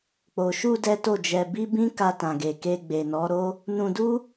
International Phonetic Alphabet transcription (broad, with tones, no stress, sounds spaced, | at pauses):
k͡p o˨ ʃ u˧ d ɛ˦ t o˦˨ d͡ʒ ɛ˧ b i˦ b ĩ˦ k a˧ t ã˨ ɡ e˨ k e˧ ɡ͡b e˨ n ɔ˨˦ ɾ o˦ | n ũ˧ d u˦